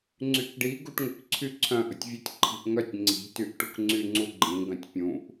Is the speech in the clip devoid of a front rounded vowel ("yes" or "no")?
no